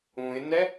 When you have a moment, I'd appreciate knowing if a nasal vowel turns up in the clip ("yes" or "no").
yes